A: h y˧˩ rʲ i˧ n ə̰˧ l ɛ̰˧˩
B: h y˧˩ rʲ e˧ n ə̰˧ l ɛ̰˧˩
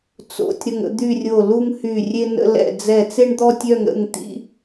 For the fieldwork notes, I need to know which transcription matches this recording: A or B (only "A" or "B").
B